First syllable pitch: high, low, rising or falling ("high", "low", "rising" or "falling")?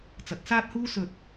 rising